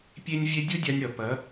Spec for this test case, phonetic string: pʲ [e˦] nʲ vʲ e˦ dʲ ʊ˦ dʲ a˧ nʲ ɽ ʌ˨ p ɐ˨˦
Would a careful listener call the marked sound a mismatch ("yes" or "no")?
no